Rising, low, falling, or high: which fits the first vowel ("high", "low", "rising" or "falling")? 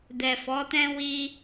low